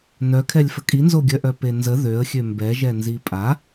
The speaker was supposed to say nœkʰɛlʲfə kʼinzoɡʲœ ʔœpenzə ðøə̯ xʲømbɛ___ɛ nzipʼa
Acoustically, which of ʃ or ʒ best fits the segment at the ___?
ʒ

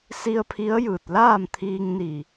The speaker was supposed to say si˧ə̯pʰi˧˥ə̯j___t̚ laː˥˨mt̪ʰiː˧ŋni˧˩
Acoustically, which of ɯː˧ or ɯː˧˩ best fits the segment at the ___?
ɯː˧˩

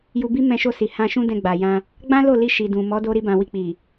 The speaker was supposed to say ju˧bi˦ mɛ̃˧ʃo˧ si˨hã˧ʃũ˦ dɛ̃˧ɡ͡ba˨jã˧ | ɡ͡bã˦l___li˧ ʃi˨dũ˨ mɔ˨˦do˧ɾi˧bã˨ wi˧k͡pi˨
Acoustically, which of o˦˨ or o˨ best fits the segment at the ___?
o˦˨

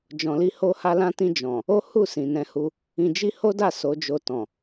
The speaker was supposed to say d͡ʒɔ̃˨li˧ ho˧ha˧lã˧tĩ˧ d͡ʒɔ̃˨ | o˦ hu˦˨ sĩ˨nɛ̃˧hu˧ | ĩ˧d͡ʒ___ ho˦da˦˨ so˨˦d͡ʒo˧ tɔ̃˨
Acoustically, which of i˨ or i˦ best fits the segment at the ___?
i˦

